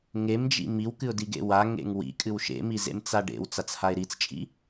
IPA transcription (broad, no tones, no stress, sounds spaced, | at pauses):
ŋ e m d͡ʒ ḭ m i w k ɨ ʊ̯ d i ɡ ḛ w a ŋ ḛ ŋ w ḭ kʼ ɨ w ʃ ḛ m i z ḛ m t͡s a ɖ ḛ w t͡s a t͡s h a ɪ̯ ɾ i t͡s t͡ʃʼ ḭ